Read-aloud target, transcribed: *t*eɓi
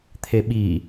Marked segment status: incorrect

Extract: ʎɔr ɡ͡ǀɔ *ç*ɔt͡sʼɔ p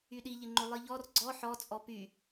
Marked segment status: incorrect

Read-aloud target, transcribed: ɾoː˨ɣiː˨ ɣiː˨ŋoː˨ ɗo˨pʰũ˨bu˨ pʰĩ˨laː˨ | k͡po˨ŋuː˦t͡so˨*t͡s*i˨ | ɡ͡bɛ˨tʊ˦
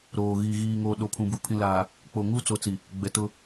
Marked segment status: correct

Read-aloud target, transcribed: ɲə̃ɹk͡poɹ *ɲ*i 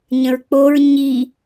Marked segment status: correct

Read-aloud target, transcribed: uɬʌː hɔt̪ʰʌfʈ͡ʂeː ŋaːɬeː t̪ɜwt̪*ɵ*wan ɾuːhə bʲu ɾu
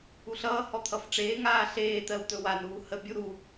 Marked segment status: correct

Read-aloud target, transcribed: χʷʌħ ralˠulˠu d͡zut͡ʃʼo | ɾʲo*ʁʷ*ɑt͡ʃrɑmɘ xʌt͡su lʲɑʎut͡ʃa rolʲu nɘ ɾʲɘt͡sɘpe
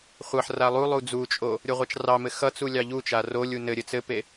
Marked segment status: correct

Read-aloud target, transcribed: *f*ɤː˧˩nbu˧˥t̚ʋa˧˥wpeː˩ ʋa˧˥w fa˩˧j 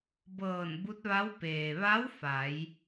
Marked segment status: incorrect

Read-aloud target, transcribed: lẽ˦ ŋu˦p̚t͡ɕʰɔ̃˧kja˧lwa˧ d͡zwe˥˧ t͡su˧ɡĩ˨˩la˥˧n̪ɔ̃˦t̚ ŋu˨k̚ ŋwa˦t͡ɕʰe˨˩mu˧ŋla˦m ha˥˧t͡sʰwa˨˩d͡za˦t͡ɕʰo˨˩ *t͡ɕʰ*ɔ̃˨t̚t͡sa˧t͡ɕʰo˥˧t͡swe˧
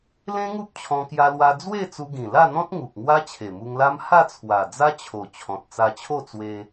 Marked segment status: correct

